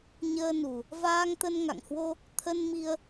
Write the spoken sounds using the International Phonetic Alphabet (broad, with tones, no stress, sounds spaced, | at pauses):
ɲ əː˧ n u˨˩ | v aː˧ ŋ t̪ ə˧ n ŋ a̰˧˨ ŋ h w o˧ | t̪ʰ ə˧ n m i˧ ə̯